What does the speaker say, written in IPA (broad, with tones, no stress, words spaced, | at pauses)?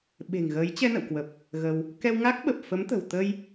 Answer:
ɓe̤˨˩ŋɣəː˨˦j t͡ɕɛ˧nə̰˧˨wkwə˨˩p̚ | ɣə˧w | kɛ˧wŋa˦˥k̚ɓə˨˩p̚ fə˨˦mt̪ə̤˨˩w t̪ə˧j